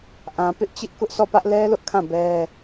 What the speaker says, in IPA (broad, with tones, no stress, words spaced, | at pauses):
ʔã˨pɪ˦ʔt͡ɕɪ˦ʔ kʊ˦ʔsʰɔ˦˨pä˦ʔ lɛ˦lʊ˦ʔkʰã˦˨ bɛ˦